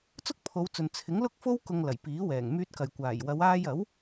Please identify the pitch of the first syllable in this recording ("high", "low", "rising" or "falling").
high